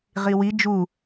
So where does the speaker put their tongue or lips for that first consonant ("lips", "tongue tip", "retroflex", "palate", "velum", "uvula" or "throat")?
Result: uvula